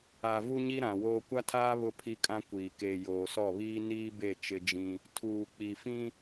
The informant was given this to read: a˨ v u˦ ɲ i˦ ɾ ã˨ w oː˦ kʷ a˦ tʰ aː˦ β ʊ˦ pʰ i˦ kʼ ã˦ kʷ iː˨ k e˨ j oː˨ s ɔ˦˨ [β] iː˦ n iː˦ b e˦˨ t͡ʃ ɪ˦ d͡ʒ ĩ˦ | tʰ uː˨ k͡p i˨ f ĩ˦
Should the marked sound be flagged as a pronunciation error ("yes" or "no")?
no